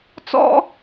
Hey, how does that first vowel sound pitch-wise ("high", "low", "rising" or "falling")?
high